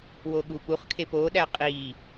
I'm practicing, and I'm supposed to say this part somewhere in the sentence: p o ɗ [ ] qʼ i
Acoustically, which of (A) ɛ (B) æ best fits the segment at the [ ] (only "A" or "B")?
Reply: B